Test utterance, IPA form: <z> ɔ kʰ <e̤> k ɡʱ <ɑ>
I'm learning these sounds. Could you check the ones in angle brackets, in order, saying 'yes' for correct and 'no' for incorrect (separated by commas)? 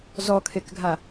yes, no, no